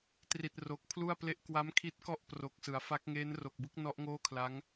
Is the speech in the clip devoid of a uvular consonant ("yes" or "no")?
yes